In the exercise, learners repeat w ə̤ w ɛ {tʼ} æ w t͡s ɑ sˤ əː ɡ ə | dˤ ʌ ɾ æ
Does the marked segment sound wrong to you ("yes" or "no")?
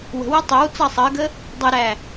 yes